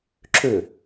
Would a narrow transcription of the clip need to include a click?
yes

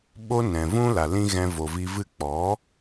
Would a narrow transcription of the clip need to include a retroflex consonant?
no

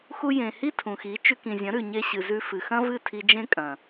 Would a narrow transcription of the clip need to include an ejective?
yes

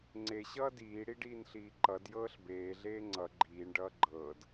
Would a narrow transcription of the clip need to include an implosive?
no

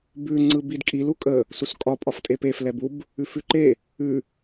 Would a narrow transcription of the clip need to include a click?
yes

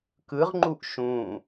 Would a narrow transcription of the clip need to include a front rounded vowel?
no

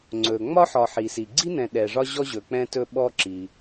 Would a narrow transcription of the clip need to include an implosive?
yes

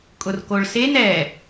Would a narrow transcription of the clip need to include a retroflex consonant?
yes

